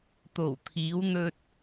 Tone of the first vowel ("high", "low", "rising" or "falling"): low